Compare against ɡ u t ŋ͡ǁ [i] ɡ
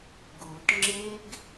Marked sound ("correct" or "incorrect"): incorrect